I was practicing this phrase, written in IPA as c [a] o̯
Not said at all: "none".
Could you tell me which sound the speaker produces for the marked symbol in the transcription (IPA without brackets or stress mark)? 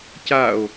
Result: a